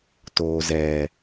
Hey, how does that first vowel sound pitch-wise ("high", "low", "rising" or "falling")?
low